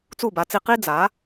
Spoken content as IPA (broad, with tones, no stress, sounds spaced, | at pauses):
t͡s u˥˩ b a˩˥ t͡s i˧ q i˥ d͡z a˩˥